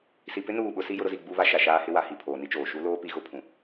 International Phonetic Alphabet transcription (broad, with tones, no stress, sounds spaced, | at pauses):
s i˨ p ɪ˦ n uː˦˨ ɓ ʊ˦ s i˦ j ʊ˦ ɾ ʊ˦ z i˦˨ ɡ͡b u˦ β a˦ ʃ a˨ ʃ aː˦ h ɪ˦ w a˨ h i˦˨ pʰ oː˨ n i˦ t͡ʃ oː˨ ʃ u˦ l oː˦ p i˨˦ ɣ ʊ˨˦ pʰ ũ˨